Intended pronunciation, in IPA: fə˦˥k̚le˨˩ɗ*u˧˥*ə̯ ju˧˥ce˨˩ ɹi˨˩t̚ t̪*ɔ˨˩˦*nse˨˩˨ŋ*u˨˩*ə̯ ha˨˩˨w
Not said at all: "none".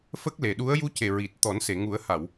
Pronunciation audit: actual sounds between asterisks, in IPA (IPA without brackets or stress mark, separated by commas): u˧˥, ɔ˨˩˦, u˨˩˦